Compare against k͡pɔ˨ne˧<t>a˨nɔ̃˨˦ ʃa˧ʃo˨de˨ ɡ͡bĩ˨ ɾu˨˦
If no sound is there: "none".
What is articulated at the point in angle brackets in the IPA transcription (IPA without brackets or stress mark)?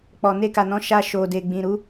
k